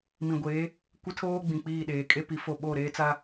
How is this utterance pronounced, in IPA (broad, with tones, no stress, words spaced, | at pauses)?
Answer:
mĩ˨ɡʷeː˨˦ | kʷɪ˦tʰoː˦ɡ͡bĩ˨ k͡piː˦˨ɗeː˨ kʼe˦pi˨fo˦˨ ɓo˦˨ɾeː˦t͡sa˦